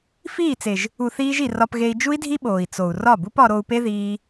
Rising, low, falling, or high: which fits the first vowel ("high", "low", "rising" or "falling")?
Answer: falling